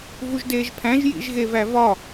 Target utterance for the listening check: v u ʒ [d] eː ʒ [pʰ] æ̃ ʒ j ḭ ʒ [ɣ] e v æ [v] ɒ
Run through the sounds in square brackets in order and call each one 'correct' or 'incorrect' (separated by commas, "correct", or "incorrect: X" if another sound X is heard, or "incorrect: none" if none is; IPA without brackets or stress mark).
correct, correct, correct, correct